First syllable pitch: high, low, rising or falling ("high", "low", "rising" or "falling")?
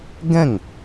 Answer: falling